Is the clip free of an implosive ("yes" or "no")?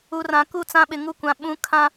no